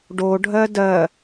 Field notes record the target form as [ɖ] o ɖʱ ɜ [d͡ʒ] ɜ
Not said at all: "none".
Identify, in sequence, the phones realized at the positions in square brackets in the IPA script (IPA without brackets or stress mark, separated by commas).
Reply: ɖ, d